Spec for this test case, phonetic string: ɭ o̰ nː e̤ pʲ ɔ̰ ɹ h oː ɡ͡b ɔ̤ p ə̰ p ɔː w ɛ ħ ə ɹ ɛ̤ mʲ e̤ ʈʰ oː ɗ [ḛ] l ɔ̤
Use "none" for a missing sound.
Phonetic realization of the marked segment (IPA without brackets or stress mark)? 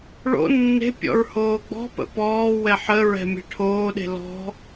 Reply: e̤